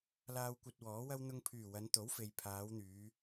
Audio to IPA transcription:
l aː˧ w kʷ ɐ˧ t̚ w ɔː˨˥ w ɐ˥ w n̪ ʊ˧ ŋ pʰ yː˨˩ w ɐ˨˧ n t̪ o˨˥ w f e˨ j pʰ aː˨˧ w n̪ yː˨˧

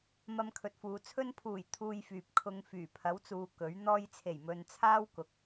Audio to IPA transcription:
m ɐ˧ m kʰ ɵ˨ t̚ f uː˨ t͡sʰ ɵ˧ n pʰ uː˨˩ j t̪ʰ uː˧ j f yː˨ p̚ kʰ ʊ˨˧ ŋ f yː˨˩ pʰ ɐ˨˥ w t͡s uː˨ k ɵ˨˥ ɥ n̪ ɔː˧ j t͡sʰ e˨˩ j m ɵ˧ n t͡sʰ aː˥ w k ʊ˨˥ k̚

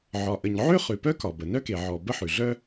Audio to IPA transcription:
ʕ ɒ˩ ʔ ə˩ ɲ ʕ ø˥ χ ʉ˩ p œ˥ k ɒ˩ b ə˩ n œ˥ k e˩ ʕ ɔ˩ b ə˥ ħ ʉ˩ ɮ œ˥

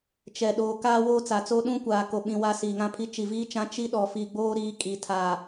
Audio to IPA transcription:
t͡ʃ ɛ˨ ɗ oː˨ k aː˦ w oː˦ t͡s a˨ t͡s o˦ ɗ ũ˦ kʷ aː˨ k o˨ ɓ ĩ˨ w a˦˨ s iː˨ ŋ ã˦ pʰ i˦ t͡ʃ i˨ v iː˦ t͡ʃ ã˦ t͡ʃ i˦ ɗ ɔ˨ f i˨ ɡ͡b oː˦ ɾ iː˦ kʼ i˨ tʰ a˨

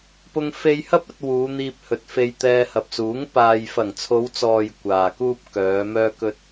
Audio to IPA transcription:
p ʊ˧ ŋ f e˧ j h ɐ˥ p̚ ɐ˧ t̚ w uː˨˧ n̪ iː˧ p̚ h ɵ˨ t̚ f e˧ j t̪ ɛː˧ h ɐ˨ p̚ s uː˨˥ ŋ p aː˨ j f ɐ˨˩ ŋ t͡sʰ o˨˧ w t͡s ɔː˨ j kʷ aː˨ k uː˥ p̚ k œː˨˧ m œː˥ k ɵ˥ t̚

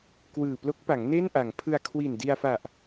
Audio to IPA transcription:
k w ɯː˨˩ p l o˦˥ k̚ p a˩˦ ŋ n e˥˩ n ʔ a˩˦ ŋ pʰ ɯ˧ a̯ kʰ w i˨˩ n d i˧ a̯ f a˨˩ ʔ

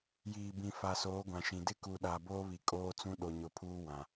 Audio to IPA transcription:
j iː˨ b ĩ˨ f a˨ s oː˨˦ ɡʷ ã˨ ʃ ĩ˨ d ɪ˦ k u˨ ɗ a˨ b oː˦ β i˨ kʼ oː˦ t͡s ũ˦ ɗ o˨ ɲ ʊ˨ pʰ uː˦ w ã˨

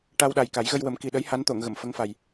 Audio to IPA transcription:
ʈ a˧ w ɗ a˨˩ j k a˨˩˦ j ɣ ə˧ j w ə˨˩˦ m k i˨˩ ɗ ə˧˥ j h a˧˥ n t̪ o˨˩˨ ŋ ɣ ə˨˩˨ m f ə˧˥ ŋ f a˨˩ j

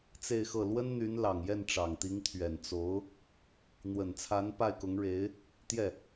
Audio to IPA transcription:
t͡s e˥˧ ɪ̯ x ɤ˥˩ l w ə˥ n n̪ y˧˥ n l ɑ˨˩ ŋ j ɛ˥˩ n ʈ͡ʂ ɑ˨˩ ŋ t̪ i˧˥ ŋ t̪ʰ ɥ ɛ˨˩ n t͡s o˧˥ ʊ̯ | n̪ w ə˨˩ n t͡sʰ a˧˥ n p a˥˩ ɪ̯ k ʊ˧˥ ŋ ɻ e˧˥ ɪ̯ | t̪ j ɛ˥˩

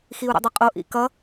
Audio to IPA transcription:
x i u̯ ɾ o̰ dˤ ʌ qʼ o ʔ ḭ k ʌ

